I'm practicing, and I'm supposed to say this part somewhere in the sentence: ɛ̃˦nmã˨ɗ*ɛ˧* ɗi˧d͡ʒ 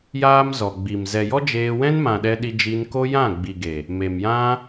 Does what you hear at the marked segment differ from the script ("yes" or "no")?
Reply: no